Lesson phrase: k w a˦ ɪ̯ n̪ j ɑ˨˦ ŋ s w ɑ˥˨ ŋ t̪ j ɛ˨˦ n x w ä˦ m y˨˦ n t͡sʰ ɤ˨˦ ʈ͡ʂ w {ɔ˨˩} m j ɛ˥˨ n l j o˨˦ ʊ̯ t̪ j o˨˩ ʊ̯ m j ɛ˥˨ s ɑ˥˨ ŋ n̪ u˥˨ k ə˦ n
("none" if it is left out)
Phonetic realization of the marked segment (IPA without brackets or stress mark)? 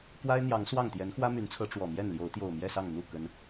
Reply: ɔ˨˩